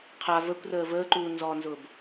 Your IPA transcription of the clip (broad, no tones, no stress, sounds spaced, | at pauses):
qʰ a v ə kʷ r əː v əː ǃ uː n z ɔ n z ʊː b